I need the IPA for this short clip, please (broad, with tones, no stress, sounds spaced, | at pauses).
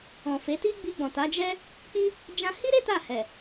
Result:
ɔ̃˨ f e˨˦ t i˦ ɡ͡b i˧ ɡ͡b ɔ̃˨ t a˨˦ d͡ʒ ɛ˦ | k͡p i˦ | d͡ʒ ã˧ h i˦ ɾ e˦ t a˦˨ h ɛ˨